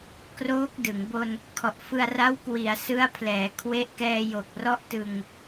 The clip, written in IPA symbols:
k r oː˦˥ k̚ d ɯ˩˦ ŋ b o˧ n | kʰ ɔ˨˩ ʔ f ɯ˧ a̯ r a˦˥ w k w i˩˦ a̯ s ɯ˦˥ a̯ pʰ l ɛː˩˦ kʰ w e˦˥ ʔ k ɛː˧ j o˨˩ k̚ r ɔ˦˥ ʔ t ɯ˧ ŋ

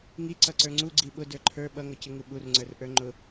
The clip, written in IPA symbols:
ŋ i ǀ ʌ ǀ ə˞ ŋ͡ǀ u ɡ͡ǀ i ɓ ʊ d ə˞ ǃʰ ə˞ ɓ ʌ ŋ ʌ c ɪ ŋ u ɓ u r ŋ͡ǀ ə˞ r ʔ ə˞ ŋ͡ǃ ʊ

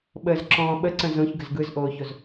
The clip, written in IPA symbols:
ɓ əː z ǁ ɔ̃ː ɓ ə ǀ ə̃ z õ ç ɡ ə z ɡ ɯ z ʔ oː ç o z

